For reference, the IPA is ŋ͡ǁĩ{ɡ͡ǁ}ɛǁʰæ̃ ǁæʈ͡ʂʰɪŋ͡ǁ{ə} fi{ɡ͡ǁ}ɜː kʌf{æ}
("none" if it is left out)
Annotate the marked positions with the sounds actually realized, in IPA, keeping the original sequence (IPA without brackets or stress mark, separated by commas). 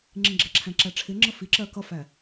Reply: ɡ͡ǁ, ə, ǁ, æ